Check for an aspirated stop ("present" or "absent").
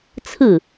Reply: present